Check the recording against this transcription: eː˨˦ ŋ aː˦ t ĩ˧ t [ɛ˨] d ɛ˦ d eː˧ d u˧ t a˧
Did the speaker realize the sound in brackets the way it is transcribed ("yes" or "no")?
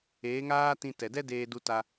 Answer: yes